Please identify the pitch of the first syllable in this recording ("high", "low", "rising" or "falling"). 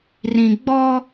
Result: low